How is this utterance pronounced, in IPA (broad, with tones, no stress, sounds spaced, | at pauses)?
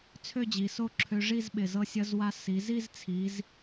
t͡sʰ ø˥˧ d͡ʑ i˩˧ s o˥ ǁʰ ø˧ ʐ i˥˧ z ɓ ɪ˧˩ z ɤ˧ sʲ ʌ˧ z w a˧ s i˩˧ z i˥˧ z t͡sʰ i˩˧ z